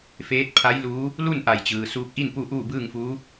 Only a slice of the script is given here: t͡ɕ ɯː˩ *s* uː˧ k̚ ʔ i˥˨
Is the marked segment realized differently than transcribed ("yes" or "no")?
no